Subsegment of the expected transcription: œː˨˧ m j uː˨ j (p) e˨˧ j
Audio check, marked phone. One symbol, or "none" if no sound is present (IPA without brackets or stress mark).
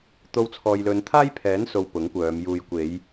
kʷ